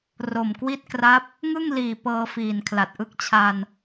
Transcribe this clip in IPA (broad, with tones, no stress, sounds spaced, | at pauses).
r o˨˩ m k w i˦˥ t̚ k r a˦˥ p̚ | ŋ ɯ˥˩ ŋ l iː˨˩ p ɤː˧ f iː˨˩ n kʰ l a˨˩ t̚ ʔ ɯ˦˥ k̚ t͡ɕʰ a˧ n